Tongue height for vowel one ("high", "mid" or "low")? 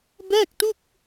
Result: mid